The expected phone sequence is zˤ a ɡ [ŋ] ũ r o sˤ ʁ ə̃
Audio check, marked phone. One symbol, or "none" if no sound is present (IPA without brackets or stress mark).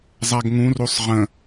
ŋ